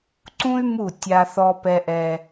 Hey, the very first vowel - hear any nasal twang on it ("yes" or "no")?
yes